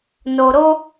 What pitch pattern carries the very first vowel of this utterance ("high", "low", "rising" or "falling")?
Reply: high